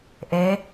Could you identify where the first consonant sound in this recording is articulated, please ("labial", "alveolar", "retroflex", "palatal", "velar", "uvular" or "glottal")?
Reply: glottal